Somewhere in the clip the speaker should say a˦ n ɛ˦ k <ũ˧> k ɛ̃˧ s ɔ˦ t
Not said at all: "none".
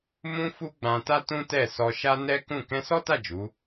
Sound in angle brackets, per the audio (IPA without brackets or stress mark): ũ˦˨